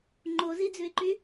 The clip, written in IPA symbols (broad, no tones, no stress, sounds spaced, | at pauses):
ŋ͡ǃ o z i d͡z ʉ ɪ̯ ǃ y